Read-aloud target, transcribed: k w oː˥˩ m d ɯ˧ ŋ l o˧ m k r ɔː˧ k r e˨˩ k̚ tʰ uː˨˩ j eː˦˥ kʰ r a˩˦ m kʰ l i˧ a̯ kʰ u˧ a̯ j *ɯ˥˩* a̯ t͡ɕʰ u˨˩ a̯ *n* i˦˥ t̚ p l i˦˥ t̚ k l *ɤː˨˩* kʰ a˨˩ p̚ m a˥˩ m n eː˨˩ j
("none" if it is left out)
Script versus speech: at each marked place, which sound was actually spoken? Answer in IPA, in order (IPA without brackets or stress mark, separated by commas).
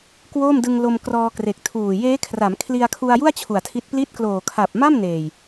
u˥˩, tʰ, oː˨˩